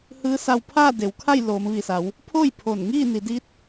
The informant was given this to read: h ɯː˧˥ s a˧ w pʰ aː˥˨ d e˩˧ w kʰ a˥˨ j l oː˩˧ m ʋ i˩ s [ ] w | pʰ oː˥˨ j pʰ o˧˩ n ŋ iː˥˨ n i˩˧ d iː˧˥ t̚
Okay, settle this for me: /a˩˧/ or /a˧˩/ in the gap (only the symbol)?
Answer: a˩˧